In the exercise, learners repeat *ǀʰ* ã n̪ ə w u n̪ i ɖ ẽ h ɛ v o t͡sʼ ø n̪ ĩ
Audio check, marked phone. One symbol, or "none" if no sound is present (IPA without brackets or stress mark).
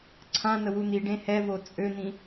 ǀʰ